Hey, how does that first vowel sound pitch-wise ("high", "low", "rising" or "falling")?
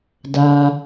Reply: low